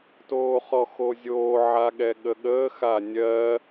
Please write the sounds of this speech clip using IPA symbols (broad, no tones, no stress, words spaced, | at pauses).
toːχɔxozʲoː ʕaɠɛɠəɠəː xanʲɜ